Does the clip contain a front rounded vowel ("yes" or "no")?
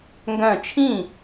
yes